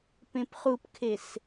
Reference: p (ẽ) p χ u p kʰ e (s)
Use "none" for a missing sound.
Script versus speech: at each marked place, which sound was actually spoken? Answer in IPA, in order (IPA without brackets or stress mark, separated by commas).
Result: ẽ, s